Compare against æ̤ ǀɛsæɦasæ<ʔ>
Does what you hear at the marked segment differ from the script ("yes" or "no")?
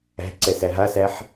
yes